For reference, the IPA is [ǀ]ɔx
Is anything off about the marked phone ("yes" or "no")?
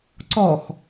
no